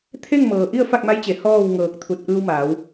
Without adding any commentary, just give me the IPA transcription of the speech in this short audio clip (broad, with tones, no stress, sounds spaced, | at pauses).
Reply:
t̪ʰ e˥˨ ŋ m ɤː˩ ʔ i˥˨ ə̯ f a˥˨ k̚ m a˧˥ j t͡ɕ e˩˧ h ɔː˥˨ w ŋ ɤː˧˩ k̚ t̪ʰ u˧˩ t̚ ʔ ɯː˧ w m aː˩˧ w